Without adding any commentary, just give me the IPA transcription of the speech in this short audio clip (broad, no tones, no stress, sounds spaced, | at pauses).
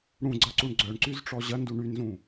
ɽ ũ ɡ͡ǀ ɐ ǀ u ɳ ɡ͡ǀ œ ɳ ǀ y z ʈ͡ʂ ɔ ʑ ɐ n d u ɳ y n z ũ